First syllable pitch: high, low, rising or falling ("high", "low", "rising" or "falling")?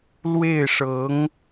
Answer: falling